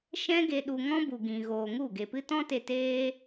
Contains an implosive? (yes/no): yes